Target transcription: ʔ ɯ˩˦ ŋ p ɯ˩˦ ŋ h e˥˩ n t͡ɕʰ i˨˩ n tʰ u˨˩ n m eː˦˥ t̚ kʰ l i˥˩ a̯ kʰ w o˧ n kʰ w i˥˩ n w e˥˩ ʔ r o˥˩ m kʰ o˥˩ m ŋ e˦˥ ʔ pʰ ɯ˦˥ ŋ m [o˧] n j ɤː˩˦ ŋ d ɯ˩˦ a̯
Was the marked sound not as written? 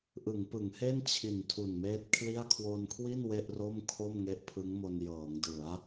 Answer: no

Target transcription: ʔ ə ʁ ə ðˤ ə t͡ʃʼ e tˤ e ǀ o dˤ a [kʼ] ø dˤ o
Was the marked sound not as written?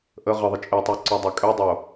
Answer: no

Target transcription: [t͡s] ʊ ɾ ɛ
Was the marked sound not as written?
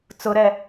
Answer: no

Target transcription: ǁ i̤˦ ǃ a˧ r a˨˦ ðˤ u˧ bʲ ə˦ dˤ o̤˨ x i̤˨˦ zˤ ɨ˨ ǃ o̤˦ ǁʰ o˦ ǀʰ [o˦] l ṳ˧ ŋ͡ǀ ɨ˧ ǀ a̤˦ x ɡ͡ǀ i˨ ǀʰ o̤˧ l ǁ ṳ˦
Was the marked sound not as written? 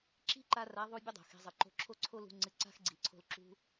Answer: no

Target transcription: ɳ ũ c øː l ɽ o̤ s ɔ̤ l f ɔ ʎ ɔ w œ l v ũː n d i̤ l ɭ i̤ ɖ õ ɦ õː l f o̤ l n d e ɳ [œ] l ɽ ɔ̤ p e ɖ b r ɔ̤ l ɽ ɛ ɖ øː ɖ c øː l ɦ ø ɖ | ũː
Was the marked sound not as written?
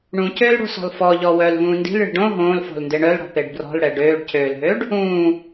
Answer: no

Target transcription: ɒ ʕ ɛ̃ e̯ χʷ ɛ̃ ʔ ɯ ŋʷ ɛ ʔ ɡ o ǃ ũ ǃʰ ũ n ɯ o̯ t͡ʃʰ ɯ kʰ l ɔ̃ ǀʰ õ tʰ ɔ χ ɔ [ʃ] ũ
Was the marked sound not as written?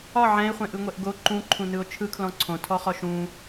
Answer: no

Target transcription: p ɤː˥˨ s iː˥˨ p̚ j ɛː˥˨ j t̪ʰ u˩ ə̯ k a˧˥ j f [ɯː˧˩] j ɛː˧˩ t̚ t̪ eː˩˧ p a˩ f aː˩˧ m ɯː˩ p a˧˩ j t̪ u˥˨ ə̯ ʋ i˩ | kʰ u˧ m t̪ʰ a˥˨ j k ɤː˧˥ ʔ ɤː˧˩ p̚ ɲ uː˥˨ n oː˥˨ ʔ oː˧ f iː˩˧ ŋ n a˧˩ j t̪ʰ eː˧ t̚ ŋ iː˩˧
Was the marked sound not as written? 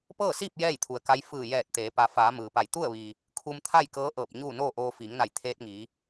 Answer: no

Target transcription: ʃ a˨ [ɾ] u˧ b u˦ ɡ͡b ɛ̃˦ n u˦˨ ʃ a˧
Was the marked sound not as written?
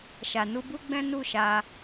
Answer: yes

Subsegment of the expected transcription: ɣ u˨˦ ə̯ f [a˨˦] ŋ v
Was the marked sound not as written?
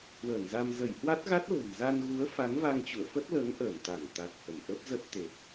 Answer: no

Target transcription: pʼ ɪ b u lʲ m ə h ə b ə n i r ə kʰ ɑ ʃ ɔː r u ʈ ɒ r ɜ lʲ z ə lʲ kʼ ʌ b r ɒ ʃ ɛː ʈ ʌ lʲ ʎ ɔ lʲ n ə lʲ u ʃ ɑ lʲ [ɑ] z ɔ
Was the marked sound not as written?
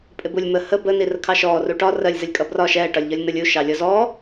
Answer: yes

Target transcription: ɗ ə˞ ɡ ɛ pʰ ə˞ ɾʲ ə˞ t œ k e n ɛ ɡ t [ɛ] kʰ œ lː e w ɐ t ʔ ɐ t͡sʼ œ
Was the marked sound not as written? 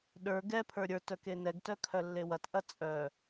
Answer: yes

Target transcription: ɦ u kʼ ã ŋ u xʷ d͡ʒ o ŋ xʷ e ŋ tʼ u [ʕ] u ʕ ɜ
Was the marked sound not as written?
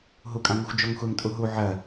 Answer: yes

